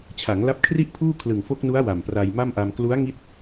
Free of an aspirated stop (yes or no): no